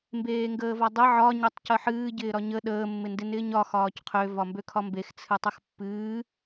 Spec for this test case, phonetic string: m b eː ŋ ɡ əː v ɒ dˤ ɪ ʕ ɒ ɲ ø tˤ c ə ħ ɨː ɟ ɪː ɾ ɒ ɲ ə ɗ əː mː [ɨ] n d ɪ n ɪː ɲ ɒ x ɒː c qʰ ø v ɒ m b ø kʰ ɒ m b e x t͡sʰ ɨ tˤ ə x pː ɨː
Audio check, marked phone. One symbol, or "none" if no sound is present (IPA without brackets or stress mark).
ɪ